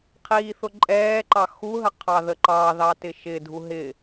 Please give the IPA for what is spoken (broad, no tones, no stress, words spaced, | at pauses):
qʰiːθʊǃʼɛːǃɑ xuɦə qʰɑðəǃɑðɑ tɪʃɪdʱu ɦɪ